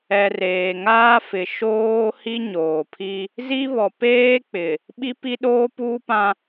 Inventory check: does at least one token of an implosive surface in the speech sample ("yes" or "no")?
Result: yes